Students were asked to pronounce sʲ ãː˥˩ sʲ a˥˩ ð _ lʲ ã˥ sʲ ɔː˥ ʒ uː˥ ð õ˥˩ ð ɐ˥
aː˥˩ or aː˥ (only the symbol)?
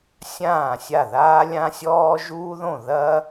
aː˥